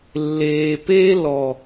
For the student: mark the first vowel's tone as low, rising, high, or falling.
low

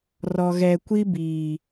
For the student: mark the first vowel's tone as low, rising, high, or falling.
low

